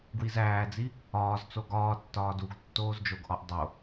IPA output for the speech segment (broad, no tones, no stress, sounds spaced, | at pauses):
ɡ w i z æː d͡z i | ɒː z t͡s o ɡ ɒː tː ɒː d u ɡ tː oː z d͡ʒ o ɡ ʔ ɒ ʔ dˤ o